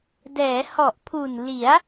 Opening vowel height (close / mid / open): mid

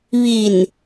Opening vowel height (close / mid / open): close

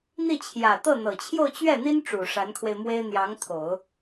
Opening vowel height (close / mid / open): close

